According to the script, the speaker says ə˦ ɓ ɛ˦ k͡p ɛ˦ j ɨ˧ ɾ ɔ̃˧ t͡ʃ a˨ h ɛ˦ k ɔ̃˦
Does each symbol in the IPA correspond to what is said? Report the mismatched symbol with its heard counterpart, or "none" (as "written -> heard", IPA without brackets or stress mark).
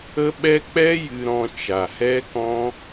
none